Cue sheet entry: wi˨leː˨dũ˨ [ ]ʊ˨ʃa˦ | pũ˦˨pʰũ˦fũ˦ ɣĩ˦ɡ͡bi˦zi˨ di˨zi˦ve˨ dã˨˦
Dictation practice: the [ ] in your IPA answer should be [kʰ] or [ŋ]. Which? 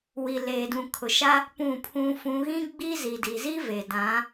kʰ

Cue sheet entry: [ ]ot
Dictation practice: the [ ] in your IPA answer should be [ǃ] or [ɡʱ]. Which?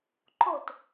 ǃ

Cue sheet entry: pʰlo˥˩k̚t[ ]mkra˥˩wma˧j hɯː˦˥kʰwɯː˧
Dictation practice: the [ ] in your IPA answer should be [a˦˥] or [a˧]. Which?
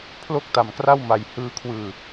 a˧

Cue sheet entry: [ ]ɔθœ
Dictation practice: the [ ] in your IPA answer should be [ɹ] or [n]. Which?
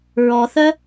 ɹ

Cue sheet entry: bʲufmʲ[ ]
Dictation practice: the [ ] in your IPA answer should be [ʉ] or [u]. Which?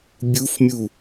u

